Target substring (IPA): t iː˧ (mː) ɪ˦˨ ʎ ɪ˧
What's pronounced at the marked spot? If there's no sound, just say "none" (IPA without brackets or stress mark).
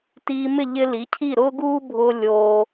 m